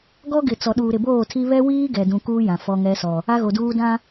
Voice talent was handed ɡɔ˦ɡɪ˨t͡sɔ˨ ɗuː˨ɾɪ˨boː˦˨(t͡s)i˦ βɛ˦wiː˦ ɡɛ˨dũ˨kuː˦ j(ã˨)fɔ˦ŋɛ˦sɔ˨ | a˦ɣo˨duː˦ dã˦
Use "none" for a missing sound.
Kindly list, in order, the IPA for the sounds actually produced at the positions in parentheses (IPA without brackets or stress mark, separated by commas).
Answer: tʰ, ã˨